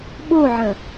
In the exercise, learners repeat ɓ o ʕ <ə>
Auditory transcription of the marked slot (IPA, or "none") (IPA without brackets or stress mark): ə̃